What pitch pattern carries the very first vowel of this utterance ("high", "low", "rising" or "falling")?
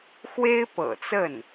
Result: high